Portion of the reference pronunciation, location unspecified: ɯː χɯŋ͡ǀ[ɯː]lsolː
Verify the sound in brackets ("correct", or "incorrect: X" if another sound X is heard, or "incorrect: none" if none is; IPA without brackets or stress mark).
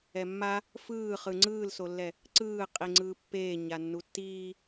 correct